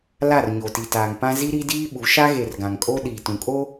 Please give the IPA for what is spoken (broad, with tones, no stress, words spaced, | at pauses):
la˦˨r ɲo˨ti˨taː˨ŋpã˦ zi˦ɾi˦diː˦ɓu˨˦ ʃa˦ɣe˨r ɡã˨ŋkʼo˦ ɗiː˨tũ˨ kʼo˦